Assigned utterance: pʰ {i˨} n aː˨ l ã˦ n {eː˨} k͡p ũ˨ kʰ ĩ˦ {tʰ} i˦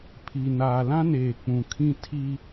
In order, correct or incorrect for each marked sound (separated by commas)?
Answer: correct, correct, correct